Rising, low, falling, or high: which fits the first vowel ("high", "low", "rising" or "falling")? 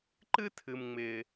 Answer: high